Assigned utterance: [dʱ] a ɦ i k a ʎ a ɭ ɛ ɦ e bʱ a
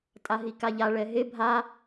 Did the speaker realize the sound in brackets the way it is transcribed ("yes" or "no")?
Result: no